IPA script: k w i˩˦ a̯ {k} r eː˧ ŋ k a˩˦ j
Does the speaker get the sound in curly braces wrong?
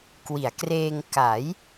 no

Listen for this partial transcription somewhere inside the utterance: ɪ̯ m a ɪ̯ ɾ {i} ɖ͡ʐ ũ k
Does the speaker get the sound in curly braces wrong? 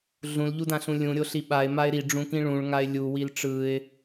no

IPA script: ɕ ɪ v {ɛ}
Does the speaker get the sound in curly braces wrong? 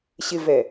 no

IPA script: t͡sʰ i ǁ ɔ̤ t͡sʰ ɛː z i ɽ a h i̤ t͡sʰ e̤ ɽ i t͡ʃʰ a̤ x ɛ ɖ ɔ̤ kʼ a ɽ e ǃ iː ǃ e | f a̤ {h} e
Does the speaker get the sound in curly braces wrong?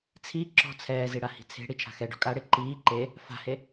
no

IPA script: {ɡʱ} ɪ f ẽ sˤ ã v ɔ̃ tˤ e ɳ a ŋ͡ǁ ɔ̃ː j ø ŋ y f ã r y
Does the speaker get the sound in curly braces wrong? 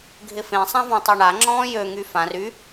no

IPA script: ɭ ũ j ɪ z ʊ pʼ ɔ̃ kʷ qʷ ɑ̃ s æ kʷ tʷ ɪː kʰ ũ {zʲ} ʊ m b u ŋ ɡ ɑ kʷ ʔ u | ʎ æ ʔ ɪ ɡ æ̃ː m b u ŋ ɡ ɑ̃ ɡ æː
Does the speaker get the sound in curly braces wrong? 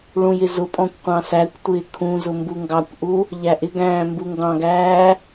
yes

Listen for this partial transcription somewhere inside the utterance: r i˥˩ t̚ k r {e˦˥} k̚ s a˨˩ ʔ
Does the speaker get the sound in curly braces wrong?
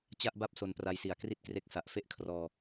no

